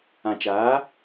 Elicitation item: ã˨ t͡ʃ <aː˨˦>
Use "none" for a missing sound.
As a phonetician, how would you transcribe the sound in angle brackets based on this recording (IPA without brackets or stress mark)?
aː˨˦